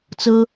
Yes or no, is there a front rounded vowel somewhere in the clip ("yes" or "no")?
no